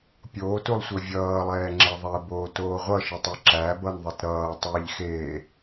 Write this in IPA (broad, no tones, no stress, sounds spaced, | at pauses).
pʲ oː t u lˠ sʷ ə vʲ ʌː lˠ ɛː ŋ͡ǁ e ðˤ ɛ b oː t oː ʁʷ ʌ ʃ ə tˤ o ǁ æ b ʌ n ðˤ i t ɾ ʌː tˤ e ʎ x eː